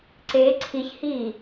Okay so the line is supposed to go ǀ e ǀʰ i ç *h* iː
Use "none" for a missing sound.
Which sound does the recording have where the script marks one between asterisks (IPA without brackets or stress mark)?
h